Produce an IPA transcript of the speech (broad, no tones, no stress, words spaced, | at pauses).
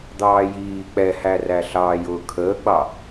d̪ɑːjiː k͡pɛhæræ ɬɑːjʊːkʰəːɡ͡bɑ